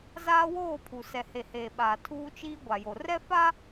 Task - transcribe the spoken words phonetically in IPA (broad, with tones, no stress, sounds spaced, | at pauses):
z aː˦ w oː˦˨ pʰ u˨ s ɛ˨ h e˨ h eː˨ ɓ aː˨ tʰ uː˦ t͡ʃ iː˦ ɡʷ a˨ j o˨ r ɛ˦ f a˦